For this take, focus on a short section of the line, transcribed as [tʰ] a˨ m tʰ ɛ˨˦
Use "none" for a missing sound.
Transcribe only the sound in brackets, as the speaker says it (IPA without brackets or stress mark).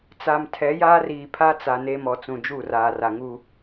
t͡s